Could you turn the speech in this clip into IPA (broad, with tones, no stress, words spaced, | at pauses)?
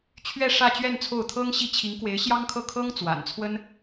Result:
t͡ɕʰɥɛ˥˧ʂä˥˧t͡ɕɥɛ˥˧n t͡sʰo˥˩ʊ̯t̪ʰɤ˥ŋɕi˥˩ t͡ɕʰi˧˥ŋkwe˧˥ɪ̯ɕjɑ˥ŋkʰɤ˥˩ kʰɤ˥ŋ t͡swa̰˨˩nt͡sʰwə˥n